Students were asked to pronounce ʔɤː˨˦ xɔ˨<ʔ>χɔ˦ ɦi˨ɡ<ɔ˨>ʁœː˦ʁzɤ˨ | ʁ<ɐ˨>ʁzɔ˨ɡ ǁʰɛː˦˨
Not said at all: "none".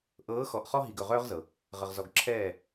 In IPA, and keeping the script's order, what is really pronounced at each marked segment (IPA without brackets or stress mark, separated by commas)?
ʔ, ɵ˨, ə˨